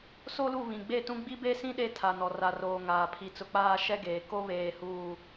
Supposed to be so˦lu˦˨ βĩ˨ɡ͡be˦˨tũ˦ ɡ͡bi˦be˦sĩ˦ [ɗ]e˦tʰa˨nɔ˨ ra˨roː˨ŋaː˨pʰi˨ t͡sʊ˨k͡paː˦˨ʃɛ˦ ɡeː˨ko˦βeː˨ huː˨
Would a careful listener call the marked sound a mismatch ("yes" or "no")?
no